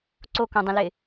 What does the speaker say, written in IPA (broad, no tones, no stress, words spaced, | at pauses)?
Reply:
ǀokõdˤə̃lɪ